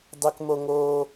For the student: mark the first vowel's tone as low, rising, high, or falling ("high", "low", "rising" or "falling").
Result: high